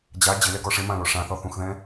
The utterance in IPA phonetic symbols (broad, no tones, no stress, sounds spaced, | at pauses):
d͡ʑ a d͡ʑ ɪ l ɛ ɡ ɔ ʂ ɪ m ã l o ʂ ã θ ɔ θ ũ x ð ɛ̃